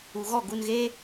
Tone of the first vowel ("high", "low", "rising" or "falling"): low